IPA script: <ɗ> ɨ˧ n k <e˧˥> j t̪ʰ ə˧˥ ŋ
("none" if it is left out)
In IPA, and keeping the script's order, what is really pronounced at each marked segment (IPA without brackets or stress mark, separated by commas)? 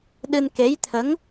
ɗ, e˧˥